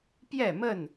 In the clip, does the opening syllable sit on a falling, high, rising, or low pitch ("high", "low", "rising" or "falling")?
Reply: falling